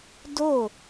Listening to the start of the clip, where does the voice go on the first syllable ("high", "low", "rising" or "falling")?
falling